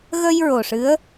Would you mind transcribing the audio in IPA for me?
ɣ ə˧ j ɹ o˨˩ ʂ ɨ˧˥ ə̯

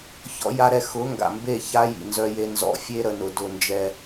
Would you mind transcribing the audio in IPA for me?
ç ɔ̰˦ j a˦ ɾ ɛ˦ x ʊ˨˦ ŋ ɡ a̰˨ m b e˦˨ ç a˦ j ḭ˨ n z œ˦ j e˦ n z ɔ̰˦ fʲ e˦ ɾ ə˨ n ʊ˨ d ʊ˦˨ n d͡ʒ ɛ˦

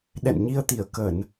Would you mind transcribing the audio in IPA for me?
ɗ ɛ̰˧˨ n ɲ i˧ ə̯ t̪ i˧˩ ə̯ k ə˧˩˨ n

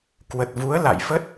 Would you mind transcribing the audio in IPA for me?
k w ə˨˩ t̚ v u˨˦ ə̯ l a̰˧˨ j f ə˦˥ t̚

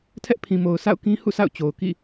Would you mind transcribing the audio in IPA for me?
tʰ ɛ˦ ʔ pʰ ĩ˨ m o˨ ʊ̯ s a̰˦˨ ʊ̯ k ĩ˦ h ṵ˦˨ s a̰˦˨ ʊ̯ t͡ɕ o˨ ʊ̯ k ḭ˦˨

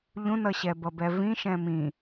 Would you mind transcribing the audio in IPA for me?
ʎ ũ n ʌ ɕ ɛ b ʌ b ɛ v ĩ ʃ ɛ̃ m ĩ

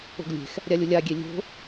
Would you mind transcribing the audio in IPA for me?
o̤ ɡ lʲ e̤ x | ɾʲ a lʲ ʊ lʲ a ɡʲ e lʲ o̤

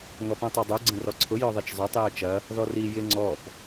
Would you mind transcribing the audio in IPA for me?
ŋ ɔ p ũ tˤ ø dˤ u ɡ͡ǀ ə̃ r ɔ ǀʰ ʊ j œ ðˤ i t͡ʃ zˤ ø tˤ j œ t͡ʃ ɐ | ð ɔ r i j ɪ ŋ͡ǀ ɔ p

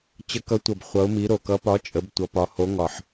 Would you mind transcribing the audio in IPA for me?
t͡ɕ ə˨˦ k ʌ˨˦ tʷ ʌ˨˩ b χʷ ʌ˨˦ ʊ̯ m i˨˦ ɾ o˨˩ k ʌ˨˦ p ɒ˨˦ t͡ʃʼ ə˨˦ b tʷ ʌ˨˦ p ɒ˨˦ h o˨˦ ŋ ɒ˨˩ ħ

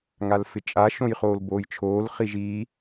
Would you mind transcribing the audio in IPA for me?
ŋ a l f ɪ t͡ʃʼ a ʃ õ j χ oː l b oː j t͡ʃʰ oː l χ i ʒ i

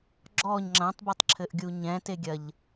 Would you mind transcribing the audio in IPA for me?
ɡ͡ǁ ɔ ɲ ŋ͡ǁ ɐ̃ tˤ b o tˤ ǁʰ ɘ ʔ ɡʲ u ɲ ɛ̃ t e ɡʲ ɐ ʎ

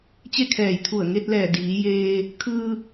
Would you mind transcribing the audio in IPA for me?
t͡ɕ e˥˨ kʰ ɛː˧˩ j t̪ʰ u˧˩ ə̯ ŋ e˧ t̚ l ɛː˧˩ d iː˩˧ j eː˧ | kʰ ɯː˧

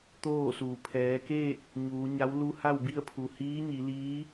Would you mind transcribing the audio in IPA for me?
t̪ oː˥˨ s uː˩ pʰ ɛː˩˧ k eː˥˨ k̚ | ɲ uː˩˧ ɲ a˧˥ w l u˧ h a˥˨ w b i˥˨ ə̯ pʰ u˩ h iː˧˥ ɲ i˩˧ l iː˧˥

